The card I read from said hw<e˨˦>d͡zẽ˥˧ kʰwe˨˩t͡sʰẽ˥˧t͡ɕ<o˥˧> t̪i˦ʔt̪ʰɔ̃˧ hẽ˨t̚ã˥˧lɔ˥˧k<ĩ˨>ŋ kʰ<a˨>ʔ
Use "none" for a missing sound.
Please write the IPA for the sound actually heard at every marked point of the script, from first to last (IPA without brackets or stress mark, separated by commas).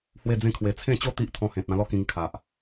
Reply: e˥˧, o˥˧, ĩ˧, a˨